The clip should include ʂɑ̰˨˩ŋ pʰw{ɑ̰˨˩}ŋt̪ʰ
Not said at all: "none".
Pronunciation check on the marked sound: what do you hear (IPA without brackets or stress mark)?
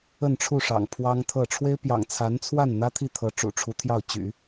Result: ɑ˥